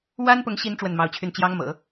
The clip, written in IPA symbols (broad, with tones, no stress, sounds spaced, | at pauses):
w a˥ n p ʊ˧˥ ŋ ɕ i˧˥ n ʈ͡ʂ w ə˥˩ n m ɑ˧˥ ʊ̯ t͡ɕʰ y˥˩ n t͡ɕ j ɑ˥ ŋ m ɤ̰˨˩˦